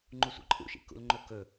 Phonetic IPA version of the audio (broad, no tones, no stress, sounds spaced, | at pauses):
ŋ͡ǃ u sʷ ḭ ǃʼ ṵ ʃ ḭ k ṵ l ŋ͡ǃ ɵ k ɵ